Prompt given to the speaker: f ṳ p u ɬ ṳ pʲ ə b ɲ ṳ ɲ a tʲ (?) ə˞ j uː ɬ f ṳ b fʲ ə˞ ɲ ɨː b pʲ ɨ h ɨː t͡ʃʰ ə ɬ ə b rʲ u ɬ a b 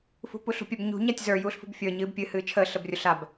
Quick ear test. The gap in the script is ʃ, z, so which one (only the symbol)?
z